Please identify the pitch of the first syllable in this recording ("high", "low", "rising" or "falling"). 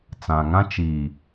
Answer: low